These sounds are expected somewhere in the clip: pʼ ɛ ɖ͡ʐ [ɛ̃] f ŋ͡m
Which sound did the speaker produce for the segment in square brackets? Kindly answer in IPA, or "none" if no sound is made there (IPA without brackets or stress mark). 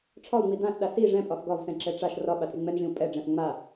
ɛ̃